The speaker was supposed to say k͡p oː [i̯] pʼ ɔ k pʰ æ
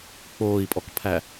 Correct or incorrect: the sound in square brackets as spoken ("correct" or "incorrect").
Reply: correct